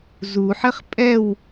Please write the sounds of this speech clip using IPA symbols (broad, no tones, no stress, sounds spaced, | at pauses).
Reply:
z u ħ ɘ χ pʼ ɛ w